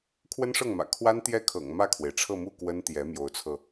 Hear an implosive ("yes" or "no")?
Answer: no